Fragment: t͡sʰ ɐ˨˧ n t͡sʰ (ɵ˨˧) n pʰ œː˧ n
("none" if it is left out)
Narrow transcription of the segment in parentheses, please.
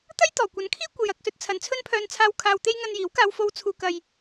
ɵ˥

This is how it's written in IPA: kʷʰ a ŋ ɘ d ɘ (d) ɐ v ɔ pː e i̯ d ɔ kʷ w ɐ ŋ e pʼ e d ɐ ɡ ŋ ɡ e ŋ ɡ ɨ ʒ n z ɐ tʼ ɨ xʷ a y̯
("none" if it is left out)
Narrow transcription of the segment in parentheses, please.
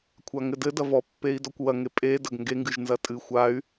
d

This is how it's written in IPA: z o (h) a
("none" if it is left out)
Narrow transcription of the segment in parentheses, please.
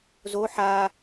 ħ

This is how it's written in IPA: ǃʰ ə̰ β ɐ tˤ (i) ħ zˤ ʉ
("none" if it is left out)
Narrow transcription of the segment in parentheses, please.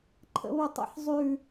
ḭ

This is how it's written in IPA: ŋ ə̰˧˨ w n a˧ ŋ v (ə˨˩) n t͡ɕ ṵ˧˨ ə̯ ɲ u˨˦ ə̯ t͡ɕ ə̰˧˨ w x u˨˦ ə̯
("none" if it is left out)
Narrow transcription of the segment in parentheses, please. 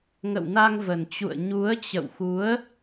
ə˨˩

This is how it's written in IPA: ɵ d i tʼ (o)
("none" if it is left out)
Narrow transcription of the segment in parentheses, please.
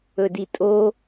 o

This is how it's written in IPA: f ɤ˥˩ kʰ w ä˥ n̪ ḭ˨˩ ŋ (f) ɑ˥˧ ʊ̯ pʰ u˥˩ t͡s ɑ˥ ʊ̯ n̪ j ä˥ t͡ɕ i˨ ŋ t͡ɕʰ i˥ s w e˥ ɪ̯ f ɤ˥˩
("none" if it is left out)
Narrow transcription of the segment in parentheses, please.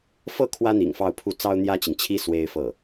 f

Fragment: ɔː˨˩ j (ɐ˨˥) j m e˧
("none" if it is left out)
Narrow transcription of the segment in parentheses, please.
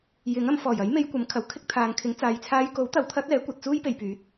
ɐ˨˥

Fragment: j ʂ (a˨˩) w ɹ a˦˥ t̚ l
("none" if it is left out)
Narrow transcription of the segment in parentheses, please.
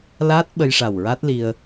a˨˩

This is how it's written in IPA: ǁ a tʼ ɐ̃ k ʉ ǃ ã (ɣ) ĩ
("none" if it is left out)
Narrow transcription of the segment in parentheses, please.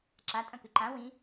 w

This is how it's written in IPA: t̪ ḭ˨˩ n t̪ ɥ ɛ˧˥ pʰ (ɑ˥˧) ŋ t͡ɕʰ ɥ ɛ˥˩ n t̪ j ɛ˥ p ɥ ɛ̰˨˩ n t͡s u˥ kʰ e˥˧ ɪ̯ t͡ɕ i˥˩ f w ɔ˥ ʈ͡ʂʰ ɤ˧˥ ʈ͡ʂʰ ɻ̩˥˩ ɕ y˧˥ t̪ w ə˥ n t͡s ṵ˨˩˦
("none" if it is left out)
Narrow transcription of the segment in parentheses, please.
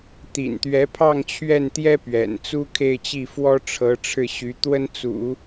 ɑ˥˧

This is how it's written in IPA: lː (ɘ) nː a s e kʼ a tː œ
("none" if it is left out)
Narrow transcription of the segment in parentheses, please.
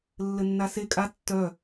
ɘ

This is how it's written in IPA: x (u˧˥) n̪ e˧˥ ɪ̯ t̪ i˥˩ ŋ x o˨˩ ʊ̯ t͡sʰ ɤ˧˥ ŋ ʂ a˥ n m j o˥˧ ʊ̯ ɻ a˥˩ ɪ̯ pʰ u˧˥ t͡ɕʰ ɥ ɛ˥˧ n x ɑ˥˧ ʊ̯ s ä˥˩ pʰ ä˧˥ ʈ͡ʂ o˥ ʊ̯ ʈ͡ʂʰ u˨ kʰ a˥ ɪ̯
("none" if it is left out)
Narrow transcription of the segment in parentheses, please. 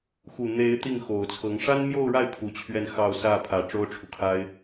u˨˩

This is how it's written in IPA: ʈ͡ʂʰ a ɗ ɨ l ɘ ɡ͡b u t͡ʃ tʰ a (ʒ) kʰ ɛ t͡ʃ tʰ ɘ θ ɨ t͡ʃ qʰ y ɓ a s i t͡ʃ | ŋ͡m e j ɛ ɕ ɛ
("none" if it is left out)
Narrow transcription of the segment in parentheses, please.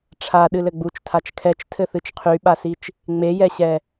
t͡ʃ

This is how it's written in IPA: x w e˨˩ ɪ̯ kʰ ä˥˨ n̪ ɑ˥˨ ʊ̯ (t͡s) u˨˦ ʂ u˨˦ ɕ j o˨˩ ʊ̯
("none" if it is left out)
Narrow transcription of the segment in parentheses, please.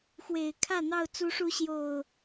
t͡s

